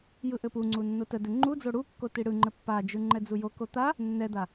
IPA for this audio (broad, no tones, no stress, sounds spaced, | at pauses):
j ɯ ʔ ɘ p u ŋ͡ǀ u nː o t ə d ɘ ŋ͡ǃ u d͡z o ɽ u kː o t i ɽ ɯ ŋ͡ǃ ɘ pː a d͡ʒ ɯ ŋ͡ǃ ɛ d͡z u j o k o t̪ a | nː ɛ d̪ a